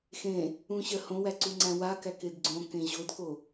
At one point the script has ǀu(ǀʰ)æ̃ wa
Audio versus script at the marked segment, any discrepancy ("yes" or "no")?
yes